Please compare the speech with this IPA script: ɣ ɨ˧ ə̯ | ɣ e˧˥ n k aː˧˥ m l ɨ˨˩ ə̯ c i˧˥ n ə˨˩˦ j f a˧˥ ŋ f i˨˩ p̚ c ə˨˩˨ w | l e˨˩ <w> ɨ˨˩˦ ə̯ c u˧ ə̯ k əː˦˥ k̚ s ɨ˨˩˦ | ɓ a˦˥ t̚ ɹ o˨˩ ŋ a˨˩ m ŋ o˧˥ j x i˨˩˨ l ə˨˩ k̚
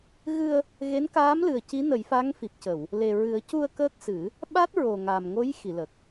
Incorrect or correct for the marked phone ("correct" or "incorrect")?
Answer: incorrect